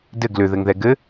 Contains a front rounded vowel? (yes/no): yes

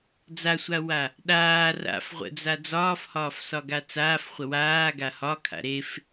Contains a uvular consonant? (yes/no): yes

